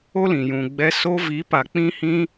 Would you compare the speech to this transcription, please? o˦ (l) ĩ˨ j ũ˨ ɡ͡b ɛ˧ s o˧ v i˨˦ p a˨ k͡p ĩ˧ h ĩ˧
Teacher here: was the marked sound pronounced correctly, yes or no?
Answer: yes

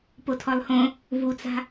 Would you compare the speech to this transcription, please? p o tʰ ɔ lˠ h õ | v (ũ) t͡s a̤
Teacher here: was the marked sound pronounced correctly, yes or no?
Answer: no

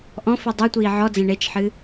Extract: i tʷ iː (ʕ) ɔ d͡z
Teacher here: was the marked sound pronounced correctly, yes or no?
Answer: yes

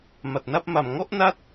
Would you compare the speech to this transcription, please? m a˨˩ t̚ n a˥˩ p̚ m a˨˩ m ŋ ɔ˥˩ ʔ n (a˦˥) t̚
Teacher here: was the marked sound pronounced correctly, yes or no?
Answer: yes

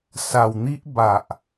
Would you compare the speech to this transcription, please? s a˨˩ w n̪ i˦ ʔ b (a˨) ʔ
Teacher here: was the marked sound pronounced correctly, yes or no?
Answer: yes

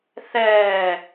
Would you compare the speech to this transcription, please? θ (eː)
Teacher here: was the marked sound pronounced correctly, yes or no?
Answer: no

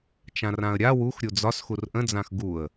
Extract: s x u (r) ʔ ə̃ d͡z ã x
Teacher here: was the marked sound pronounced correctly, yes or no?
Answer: yes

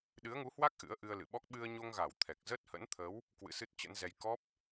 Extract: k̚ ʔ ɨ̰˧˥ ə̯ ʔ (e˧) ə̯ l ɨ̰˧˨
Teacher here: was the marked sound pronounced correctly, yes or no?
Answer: no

